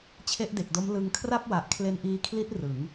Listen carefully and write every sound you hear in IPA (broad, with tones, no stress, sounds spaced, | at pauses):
t͡ɕʰ e˦˥ ʔ d e˨˩ k̚ d o˦˥ m l ɯ˧ ŋ kʰ r a˥˩ p̚ w a˨˩ ʔ kʰ l e˧ n ʔ iː˧ kʰ l i˦˥ t̚ r ɯ˩˦ ŋ